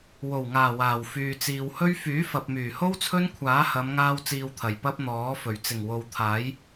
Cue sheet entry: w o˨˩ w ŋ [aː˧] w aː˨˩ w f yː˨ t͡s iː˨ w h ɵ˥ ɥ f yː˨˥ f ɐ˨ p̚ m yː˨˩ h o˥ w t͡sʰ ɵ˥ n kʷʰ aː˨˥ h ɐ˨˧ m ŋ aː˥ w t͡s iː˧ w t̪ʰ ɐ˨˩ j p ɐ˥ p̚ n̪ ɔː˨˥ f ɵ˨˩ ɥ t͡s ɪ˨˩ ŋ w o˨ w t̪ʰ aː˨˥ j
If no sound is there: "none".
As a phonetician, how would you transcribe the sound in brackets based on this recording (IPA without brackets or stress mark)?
aː˨˩